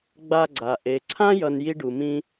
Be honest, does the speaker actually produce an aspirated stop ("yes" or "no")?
yes